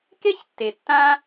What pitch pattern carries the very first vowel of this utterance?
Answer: high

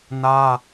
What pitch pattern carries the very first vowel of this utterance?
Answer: high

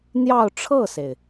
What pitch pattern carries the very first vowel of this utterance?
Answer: falling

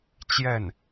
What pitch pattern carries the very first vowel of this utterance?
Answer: falling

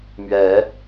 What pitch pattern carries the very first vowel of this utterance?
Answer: rising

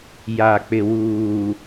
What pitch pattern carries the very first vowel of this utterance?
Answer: low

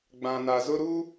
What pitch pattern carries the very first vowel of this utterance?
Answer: low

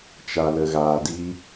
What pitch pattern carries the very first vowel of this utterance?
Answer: low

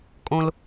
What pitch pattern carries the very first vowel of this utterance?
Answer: low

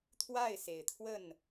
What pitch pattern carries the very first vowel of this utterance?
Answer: falling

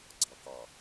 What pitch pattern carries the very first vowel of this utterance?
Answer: low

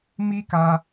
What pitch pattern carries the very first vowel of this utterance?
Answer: high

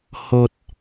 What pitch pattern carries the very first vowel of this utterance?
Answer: low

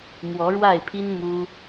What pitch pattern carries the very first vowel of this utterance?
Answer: rising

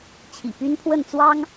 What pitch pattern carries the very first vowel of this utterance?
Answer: low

